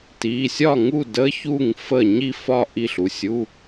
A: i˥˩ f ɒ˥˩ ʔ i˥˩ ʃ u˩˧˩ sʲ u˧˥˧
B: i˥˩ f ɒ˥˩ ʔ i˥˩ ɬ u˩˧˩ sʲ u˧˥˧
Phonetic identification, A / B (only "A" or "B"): B